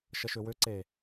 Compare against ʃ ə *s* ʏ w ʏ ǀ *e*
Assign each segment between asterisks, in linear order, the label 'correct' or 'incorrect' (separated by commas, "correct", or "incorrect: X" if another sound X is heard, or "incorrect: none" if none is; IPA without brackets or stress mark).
incorrect: ʃ, correct